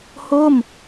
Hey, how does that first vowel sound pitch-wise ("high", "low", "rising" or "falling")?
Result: falling